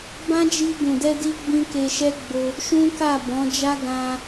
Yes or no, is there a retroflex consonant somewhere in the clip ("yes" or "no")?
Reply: no